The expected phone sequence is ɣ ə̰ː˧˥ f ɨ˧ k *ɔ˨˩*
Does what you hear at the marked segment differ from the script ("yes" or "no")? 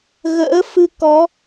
yes